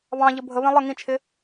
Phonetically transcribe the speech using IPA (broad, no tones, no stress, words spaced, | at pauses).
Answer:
βɑ̃ʎə bʱəβɛ̃ lˠə ŋĩt͡ʃʰɪ